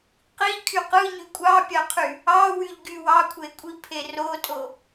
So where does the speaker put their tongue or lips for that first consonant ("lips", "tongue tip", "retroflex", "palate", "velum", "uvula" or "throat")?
uvula